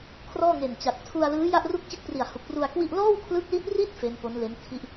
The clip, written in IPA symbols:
kʰ r ɔː˥˩ ŋ e˨˩ n t͡ɕ a˨˩ k̚ tʰ u˧ a̯ l ɯː˦˥ j a˥˩ ʔ r u˥˩ k̚ t͡ɕ ɯ˥˩ k̚ p r i˨˩ a̯ h u˨˩ k̚ p r u˧ a̯ k w i˥˩ ʔ l ɔː˥˩ w kʰ l ɯ˦˥ k̚ l i˦˥ t̚ r i˥˩ t̚ f e˦˥ n p o˦˥ n l e˦˥ n tʰ i˥˩ ʔ

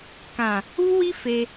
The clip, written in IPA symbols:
k ã˨ | u˦ w i˦ f e˧

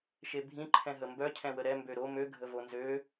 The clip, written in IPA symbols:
ʃ e bʱ ĩ ǃʰ ɛ̃ ɦ ə m b œ cʰ ɛ̃ w ə ɾ ɛ m b ø ɾ o m ø ɡʱ ə v o n z ø

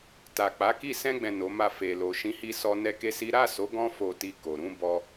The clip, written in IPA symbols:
t a˨ k͡p a˨˦ k i˦˨ s ɛ̃˧ ɡ͡b ɛ̃˨ n o˨˦ m a˦˨ f e˨ l o˨ ʃ ĩ˨˦ h i˧ s ɔ˧ n ɛ˦ k e˦ s i˦ ɾ a˦˨ s o˨˦ ɡ ɔ̃˦ f o˧ t i˧ k o˨ ɾ ũ˧ b ɔ˧

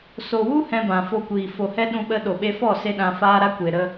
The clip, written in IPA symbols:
s o˨ w u˦ h ɛ̃˧ b ã˨ f o˧ kʷ iː˨ f o˨ h ɛ˧ ɗ ũ˧ ɓ ə˧ ɗ o˨ ɓ e˧ f ɔ˦˨ s e˧ ɗ ã˧ f aː˧ ɾ a˧ kʷ e˨ ɾ ə˧

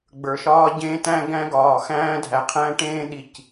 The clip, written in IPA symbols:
ɡ͡b ə˞˩ ʃ ɒː˧ ɟ ẽː˧ t æ̃˧ ɡ æ̃˧ ɡ ɒː˩ x æ̃ː˧ dʱ æ˩ qʰ æ̃˧ ʈ ẽː˧ ɗ i˩ c

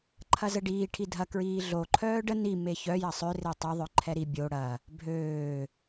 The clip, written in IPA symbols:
ǃʰ ɐ z ə ɖ iː ʈʰ i dʱ ɐ k ɹ iː ɮ o ǃʰ œː ɖ ə n i m e ç œ j ɐ sˤ ʏ r e tˤ ø ðˤ œ ǃʰ ɛ ɾ i bʲ o ɽ ɐ | bʱ øː

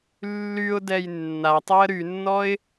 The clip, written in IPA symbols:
lː y ʊ̯ d ɛ j nː a tˤ ɛ ə̯ ɾ y nː ɔ ɪ̯

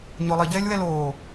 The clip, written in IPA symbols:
ɲ o lˠ i ɟ ɛː lʲ w ɛ l oː

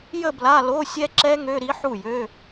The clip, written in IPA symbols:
j ə˥˧ b l a˧˥˧ l o˧˥˧ sʲ ɛ˦˥ ǁ ɛ˦˥ ŋ ø˧˥˧ ɾ i˦˥ ħ u˥˩ j ø˧˥˧

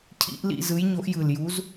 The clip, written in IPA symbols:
cʰ ḭ˨˥ ʔ l ḭ˦˨ z ɯ˨˥ j ɲ o˨˥ ʔ j ɯ˨˩ l j u˨˥ z

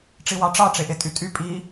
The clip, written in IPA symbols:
ʈ͡ʂ i w ɑ ʈ͡ʂ ɑ ʈ͡ʂ e ʔ e tʼ y tʼ y pʼ i

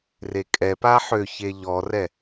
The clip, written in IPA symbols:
r e kʼ ɛ p a ħ ø ç e ʎ ɔ r ɛ

